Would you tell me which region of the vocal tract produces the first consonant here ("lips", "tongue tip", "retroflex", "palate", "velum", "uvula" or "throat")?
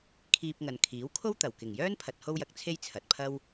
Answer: velum